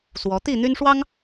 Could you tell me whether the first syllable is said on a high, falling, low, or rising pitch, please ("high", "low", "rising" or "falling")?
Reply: rising